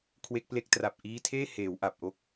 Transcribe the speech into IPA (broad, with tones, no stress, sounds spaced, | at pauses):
kʰ w e˦˥ k̚ p l e˦˥ k̚ t r a˨˩ p̚ ʔ iː˦˥ tʰ eː˥˩ h eː˩˦ w ʔ a˨˩ p̚ ʔ o˦˥ k̚